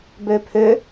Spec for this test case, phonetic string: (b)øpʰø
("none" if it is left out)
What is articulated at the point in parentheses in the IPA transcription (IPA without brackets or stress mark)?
b